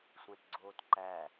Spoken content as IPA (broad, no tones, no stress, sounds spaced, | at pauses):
sʷ æ̃ t ɡ͡ǀ oː t ǃ æ